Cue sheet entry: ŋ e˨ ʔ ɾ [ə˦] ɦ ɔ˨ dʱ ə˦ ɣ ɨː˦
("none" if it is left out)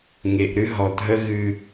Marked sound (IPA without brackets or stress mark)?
ɨ˦